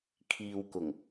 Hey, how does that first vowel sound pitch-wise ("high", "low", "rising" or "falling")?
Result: low